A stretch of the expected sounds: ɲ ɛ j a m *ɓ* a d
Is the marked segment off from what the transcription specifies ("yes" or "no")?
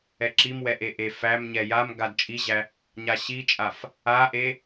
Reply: yes